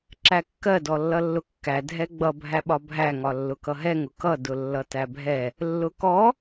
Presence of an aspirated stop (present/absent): absent